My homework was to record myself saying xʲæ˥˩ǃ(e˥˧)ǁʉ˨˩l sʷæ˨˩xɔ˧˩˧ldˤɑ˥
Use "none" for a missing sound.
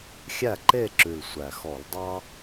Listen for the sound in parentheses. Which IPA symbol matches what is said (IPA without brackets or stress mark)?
e˥˧